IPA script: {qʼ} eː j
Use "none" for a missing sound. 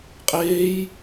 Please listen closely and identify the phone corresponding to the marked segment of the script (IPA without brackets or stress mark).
qʼ